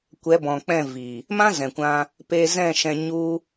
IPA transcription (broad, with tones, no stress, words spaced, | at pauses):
kʷɛ˨˦bɔ̃˨k͡pɛ̃˦˨vi˨ | mã˦ zɛ̃˨kʷã˧ | pe˧zɛ̃˦˨ʃɛ̃˧ɲu˦